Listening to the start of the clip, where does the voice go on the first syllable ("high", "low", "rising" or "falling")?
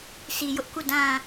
low